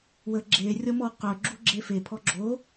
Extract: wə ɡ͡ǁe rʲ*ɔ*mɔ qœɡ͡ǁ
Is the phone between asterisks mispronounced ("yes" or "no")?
no